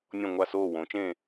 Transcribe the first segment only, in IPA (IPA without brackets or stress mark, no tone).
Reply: nʲ